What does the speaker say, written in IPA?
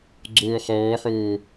ɡ͡ǀ oː χ ɔː ħ oː

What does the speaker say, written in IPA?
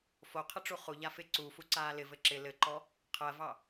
f o qʰ ɘ ʈ͡ʂ u χ u ʎ a f ɪ ǀ u f u ǀ aː l ɪ v ɘ ǁ ɪ l ɘ ǃ ɔ | qʰ ɜ v ɑ

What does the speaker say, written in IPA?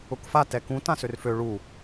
ʊ k f a t ɛ k ũ t ã s ø r f ø ɭ u

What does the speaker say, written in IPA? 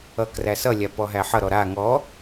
ʌ k r æ s ʌ lʲ a p ɔ ɦ æ ħ ʌ ɾ ɔ ɾ a ŋ ɔ

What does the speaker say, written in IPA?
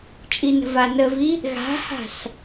t͡ʃʼ i n ə̤ v a n ə v i | ɣ a̤ h a̤ s

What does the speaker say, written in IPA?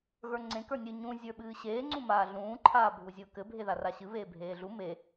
ɣ ə˞ ŋ͡ǀ ẽ k ə˞ nʲ ɨ ɲ ũ zʲ ə˞ ɓ ɨː ɕ eː ŋ͡ǀ ũ m aː ɮ ũː ǃʰ aː bʱ u zʲ ʊː k ɘ bʱ e ð a r a ɕ ɨ β eː bʱ eː ɮ u m e

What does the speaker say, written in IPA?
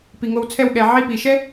p i˨ ŋ o˧ w t͡sʰ ɛ˦˨ w ɠ ɛ˨ ʕ i˧ p i˨ ʃ ɛ˦

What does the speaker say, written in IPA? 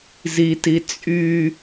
z i t i t͡sʼ y

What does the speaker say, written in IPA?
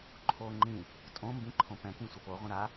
ǃʰ o ŋ͡ǃ ĩ | tʼ õ m b ĩ ǃʰ õ p ɛ̃ k ĩ sʷ ə p o ʁʷ ə̃ ɾ a

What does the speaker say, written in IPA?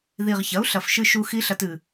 ð i˨˩ ʁ ç ɐ˩˥ u̯ ɬ ɐ˨˩ f ʃ ɨ˧ ʃ u˧ x i˦˥ ɬ ɐ˧ t ɨ˨˩

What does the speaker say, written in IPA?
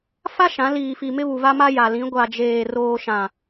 f a˦ ʃ ã˨˦ l iː˨ f i˨ m ɪ˦ β u˨ v a˦ m a˦ j a˨ l ĩ˨˦ ɡʷ a˨ d͡ʒ eː˨ r oː˨ ʃ ã˨

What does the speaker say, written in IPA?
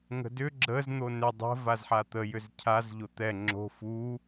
ŋ ə̤ d ʏ ɡ͡ǁ ə z n̪ o n ʏ dˤ ə̤ v a z ħ a t̪ ə j ʏ z cʰ a z ʎ o t̪ ɛ ŋ͡ǁ o̤ f u

